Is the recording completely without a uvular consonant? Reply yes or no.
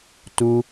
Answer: yes